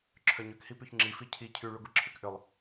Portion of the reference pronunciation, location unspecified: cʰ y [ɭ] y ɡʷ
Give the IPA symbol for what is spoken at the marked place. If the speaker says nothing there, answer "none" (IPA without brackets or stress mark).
ɭ